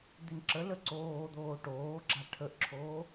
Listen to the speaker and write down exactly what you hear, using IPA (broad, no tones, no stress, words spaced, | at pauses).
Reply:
d̪inǁələ ǀoːd̪oː ʈoːɡ͡ǁa ʈʰəʔǁʰoː